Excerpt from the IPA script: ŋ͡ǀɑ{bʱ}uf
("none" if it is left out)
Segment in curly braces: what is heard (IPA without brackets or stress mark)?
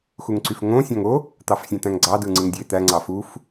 f